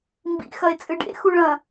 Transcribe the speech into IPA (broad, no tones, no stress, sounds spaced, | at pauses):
m b ḭ x ɐ e̯ t͡sʼ ɨ ɖ ḛ x u ɭ ɐ̃